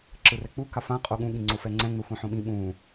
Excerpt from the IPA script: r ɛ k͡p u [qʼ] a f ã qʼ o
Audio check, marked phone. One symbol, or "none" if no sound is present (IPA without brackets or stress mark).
k